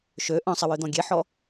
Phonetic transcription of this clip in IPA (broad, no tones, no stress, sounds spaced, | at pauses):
ʃ ø ʔ œ̃ sˤ ɪ w ø d̪ ɔ̃ ɡʲ e ħ ɔ